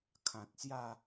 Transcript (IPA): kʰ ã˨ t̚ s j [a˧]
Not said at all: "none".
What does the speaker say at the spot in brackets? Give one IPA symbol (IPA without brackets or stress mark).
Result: a˥˧